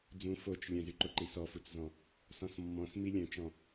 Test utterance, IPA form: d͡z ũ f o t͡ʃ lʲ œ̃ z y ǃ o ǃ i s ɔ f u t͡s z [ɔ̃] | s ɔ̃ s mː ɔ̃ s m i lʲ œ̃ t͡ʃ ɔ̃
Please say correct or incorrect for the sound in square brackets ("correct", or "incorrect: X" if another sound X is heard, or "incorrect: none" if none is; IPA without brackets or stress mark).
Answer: correct